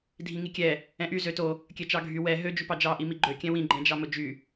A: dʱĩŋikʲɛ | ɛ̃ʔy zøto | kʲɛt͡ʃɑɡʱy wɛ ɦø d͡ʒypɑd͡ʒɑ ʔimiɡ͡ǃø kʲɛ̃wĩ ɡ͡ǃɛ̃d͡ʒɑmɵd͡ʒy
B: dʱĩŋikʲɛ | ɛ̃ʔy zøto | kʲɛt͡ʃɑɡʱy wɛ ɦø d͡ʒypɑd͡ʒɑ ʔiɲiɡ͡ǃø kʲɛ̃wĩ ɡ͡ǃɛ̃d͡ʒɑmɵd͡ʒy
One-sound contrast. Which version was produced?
A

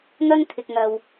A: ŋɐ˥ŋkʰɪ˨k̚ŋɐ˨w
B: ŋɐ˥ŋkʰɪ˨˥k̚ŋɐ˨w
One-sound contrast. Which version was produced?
A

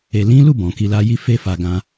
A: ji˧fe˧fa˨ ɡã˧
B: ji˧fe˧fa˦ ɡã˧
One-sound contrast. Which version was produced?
A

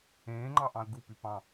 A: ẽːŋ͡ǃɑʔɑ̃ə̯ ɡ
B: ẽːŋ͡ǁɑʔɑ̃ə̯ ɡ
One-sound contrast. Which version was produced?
A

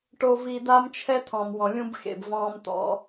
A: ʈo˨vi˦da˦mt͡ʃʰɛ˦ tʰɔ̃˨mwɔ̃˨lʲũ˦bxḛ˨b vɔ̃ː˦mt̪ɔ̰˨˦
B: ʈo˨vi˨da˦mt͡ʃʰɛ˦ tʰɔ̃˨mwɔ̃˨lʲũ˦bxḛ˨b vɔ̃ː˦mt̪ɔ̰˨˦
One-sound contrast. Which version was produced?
B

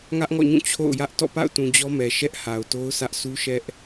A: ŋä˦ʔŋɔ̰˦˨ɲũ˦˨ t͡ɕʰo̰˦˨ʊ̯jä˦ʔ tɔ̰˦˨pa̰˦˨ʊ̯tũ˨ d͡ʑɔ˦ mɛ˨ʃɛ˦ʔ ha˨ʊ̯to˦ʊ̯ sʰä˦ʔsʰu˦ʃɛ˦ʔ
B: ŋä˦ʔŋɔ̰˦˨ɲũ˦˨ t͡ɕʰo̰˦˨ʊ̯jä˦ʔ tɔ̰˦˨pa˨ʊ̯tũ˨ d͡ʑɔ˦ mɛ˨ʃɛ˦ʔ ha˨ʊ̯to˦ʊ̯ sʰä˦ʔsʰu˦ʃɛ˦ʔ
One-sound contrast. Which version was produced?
A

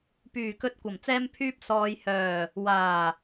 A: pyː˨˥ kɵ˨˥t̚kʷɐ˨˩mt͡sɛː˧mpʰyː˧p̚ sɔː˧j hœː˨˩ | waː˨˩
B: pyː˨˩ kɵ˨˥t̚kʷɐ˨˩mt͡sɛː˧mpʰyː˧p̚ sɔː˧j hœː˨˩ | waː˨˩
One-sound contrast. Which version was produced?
B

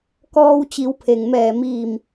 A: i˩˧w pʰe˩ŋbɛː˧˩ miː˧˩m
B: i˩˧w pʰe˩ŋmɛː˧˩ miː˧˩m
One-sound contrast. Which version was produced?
B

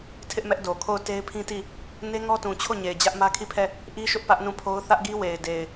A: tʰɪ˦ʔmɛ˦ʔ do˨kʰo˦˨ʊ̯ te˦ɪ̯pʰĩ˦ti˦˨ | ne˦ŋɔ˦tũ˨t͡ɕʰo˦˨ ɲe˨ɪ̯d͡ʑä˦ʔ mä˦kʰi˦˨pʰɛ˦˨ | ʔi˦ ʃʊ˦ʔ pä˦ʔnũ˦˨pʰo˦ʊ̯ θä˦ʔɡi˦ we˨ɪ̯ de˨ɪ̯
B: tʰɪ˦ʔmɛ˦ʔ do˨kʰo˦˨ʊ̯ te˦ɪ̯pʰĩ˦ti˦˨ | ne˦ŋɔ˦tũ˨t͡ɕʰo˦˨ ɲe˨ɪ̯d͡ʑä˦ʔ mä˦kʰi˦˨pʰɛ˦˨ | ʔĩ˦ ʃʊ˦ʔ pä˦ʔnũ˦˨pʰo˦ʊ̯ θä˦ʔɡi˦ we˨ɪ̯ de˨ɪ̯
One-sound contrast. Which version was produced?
A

